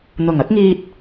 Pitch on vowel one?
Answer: low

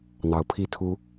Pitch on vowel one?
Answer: rising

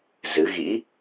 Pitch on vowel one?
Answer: rising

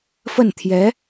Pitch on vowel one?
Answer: falling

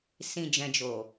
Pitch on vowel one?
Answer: low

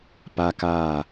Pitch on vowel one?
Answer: high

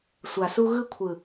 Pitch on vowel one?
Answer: low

